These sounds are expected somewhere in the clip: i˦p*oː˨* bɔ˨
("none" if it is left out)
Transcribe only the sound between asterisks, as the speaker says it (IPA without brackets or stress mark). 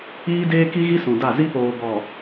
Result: oː˨